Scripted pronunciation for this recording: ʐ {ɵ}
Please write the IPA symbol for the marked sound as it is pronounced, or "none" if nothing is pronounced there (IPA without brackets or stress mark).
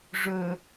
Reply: ɵ